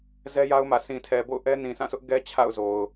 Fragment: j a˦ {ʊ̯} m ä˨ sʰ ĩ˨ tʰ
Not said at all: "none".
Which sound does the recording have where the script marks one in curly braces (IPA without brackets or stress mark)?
ʊ̯